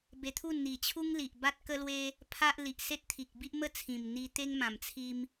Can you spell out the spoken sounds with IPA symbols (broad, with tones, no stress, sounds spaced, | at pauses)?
b e˧ t̪ʰ u˥˧ n n̪ i˨˩ t͡ɕʰ u˦ ŋ l i˨ ʔ b a˦ t̚ k ə˦ l w e˦ | pʰ a˦ ʔ l i˨ ʔ s e˦ t̚ t̪ʰ i˨ k̚ b i˦ ʔ m ə˥˧ t͡sʰ ĩ˨˩ m n̪ i˧ t̪ e˦ ŋ m ã˨˩ m t͡sʰ i˧ m